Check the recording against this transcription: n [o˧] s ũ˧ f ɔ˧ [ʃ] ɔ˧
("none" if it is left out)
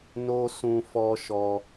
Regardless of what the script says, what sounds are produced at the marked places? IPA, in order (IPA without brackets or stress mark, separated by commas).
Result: o˧, ʃ